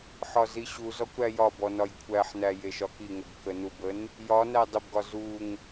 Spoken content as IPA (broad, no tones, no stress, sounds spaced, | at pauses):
ħ ɒ z i ɕ u z ɔ kʷ ɾ æ j ɒ b ɔ n ɒ j kʷʰ æ ħ n æ j e ʃ ɒ k i ŋ ə b k ə n u b ə n | j ɒ n æ dˤ ə b ɡ ɒ z u ŋ